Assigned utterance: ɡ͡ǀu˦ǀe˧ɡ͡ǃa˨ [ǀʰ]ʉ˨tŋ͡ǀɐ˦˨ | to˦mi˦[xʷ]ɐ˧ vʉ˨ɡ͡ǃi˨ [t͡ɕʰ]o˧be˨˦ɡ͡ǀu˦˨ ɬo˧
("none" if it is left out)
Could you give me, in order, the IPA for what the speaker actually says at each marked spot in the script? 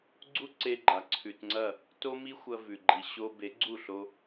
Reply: ǀʰ, xʷ, ɕ

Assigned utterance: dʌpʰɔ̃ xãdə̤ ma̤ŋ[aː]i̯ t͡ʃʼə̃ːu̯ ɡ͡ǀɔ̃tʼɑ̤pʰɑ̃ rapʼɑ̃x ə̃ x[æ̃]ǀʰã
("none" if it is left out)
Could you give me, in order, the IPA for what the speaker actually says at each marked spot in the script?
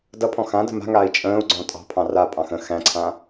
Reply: aː, æ̃

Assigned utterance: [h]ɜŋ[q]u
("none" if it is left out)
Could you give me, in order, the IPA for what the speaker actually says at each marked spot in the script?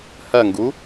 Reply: h, ɡ

